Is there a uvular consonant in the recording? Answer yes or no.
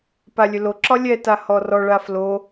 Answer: no